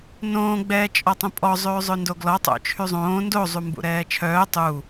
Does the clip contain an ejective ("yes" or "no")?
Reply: yes